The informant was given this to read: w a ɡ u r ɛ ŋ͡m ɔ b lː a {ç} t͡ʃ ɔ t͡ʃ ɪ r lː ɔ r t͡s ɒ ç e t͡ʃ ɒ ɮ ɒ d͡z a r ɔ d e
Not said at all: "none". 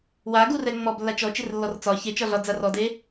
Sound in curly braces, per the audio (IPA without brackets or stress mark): none